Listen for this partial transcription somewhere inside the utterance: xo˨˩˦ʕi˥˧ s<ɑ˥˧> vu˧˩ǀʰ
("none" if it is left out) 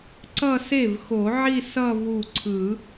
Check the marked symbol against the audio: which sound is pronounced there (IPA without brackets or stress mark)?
ʌ˥˧